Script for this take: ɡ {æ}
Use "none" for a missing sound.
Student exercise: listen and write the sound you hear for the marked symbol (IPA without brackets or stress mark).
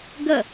ɐ